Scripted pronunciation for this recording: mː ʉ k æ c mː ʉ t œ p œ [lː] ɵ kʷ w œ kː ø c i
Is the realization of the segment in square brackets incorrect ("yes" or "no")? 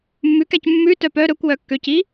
yes